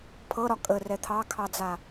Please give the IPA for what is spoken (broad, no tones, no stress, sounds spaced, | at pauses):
pʰ ɤ ɾ ɒ kʼ ə r ɛ t̪ʰ ɑ kʰ ɑ d͡z a